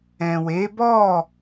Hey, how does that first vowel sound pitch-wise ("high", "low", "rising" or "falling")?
low